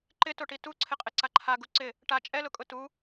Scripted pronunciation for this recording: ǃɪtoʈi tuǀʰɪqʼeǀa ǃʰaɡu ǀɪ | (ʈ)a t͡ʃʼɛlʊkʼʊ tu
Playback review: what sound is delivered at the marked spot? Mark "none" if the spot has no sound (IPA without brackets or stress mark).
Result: ʈ